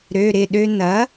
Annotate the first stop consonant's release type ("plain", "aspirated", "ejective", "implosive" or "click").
implosive